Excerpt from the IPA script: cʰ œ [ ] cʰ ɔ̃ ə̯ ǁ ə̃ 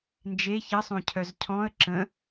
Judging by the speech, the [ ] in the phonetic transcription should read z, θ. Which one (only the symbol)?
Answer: z